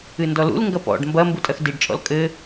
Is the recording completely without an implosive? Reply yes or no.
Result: yes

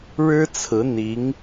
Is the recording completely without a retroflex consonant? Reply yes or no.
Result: no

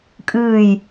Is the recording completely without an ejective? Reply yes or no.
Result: no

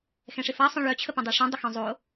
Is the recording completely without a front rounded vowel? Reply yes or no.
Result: no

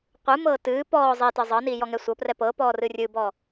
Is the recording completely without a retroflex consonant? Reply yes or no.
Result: yes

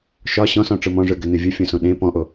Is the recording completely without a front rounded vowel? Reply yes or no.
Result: no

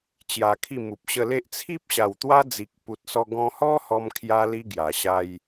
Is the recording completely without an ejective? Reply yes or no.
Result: yes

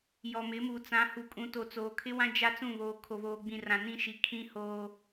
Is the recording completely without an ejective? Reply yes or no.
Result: no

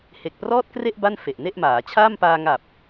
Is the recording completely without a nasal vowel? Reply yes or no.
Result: yes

